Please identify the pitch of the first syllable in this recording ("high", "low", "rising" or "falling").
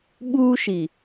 high